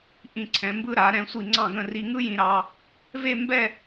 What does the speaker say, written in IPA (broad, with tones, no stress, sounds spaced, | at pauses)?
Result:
ʔ ĩ˧˩ ǀʰ ɛ̃˩˧ m b ɯ˧ ɾ a˩˧ ɾ ɛ̃˧˩ sʷ i˧˩ ŋ͡ǀ ɑ̃˧˩ ɡ ə̃˧˩ r i˧ ŋ ɯ˥ j ĩ˧ ɾ ɑ˧ | v e˥˧ m b ɛ˥˧